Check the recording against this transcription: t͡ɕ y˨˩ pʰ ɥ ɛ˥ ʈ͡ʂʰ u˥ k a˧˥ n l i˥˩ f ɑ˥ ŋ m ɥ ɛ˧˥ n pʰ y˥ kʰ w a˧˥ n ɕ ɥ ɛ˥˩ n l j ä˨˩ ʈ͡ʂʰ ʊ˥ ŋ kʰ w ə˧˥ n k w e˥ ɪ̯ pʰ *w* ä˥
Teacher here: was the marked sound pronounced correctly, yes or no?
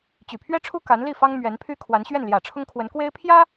no